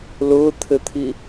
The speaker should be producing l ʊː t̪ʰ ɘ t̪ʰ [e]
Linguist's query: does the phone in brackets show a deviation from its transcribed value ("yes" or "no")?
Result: yes